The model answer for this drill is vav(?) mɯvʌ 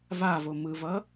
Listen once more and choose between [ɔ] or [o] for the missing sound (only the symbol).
o